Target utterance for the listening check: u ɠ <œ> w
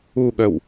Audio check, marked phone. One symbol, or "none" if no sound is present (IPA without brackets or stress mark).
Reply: œ